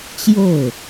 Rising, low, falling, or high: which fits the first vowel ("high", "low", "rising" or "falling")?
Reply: falling